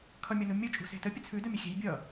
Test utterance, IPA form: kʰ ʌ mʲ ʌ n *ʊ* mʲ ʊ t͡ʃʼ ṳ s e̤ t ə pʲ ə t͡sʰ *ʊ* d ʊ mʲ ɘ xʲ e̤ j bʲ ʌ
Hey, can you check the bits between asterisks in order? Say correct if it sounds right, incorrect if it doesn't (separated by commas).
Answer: incorrect, incorrect